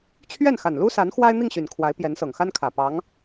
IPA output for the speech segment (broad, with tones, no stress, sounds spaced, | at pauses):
t͡ɕʰ ɥ ɛ˥˩ n x a˨˩ n l u˥ s a˧˥ n x w a˥ ɪ̯ n̪ i˥˩ ŋ ɕ y˨˩ n kʰ w a˧˥ ɪ̯ p j ɛ˧˥ n s ɤ˨˩ ŋ x a˥ n kʰ ä˨˩ p ɑ˧˥ ŋ